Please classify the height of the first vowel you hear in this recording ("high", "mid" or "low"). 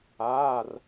low